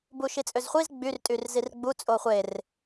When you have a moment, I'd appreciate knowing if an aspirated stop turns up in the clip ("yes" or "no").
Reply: no